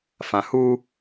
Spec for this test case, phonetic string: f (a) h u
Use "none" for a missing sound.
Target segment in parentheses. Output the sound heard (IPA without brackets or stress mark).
ã